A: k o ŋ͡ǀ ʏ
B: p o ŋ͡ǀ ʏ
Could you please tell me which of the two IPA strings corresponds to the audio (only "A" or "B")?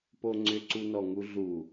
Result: B